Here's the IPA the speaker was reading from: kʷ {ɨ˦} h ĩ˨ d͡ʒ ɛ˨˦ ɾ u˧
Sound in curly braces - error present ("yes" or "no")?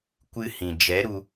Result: no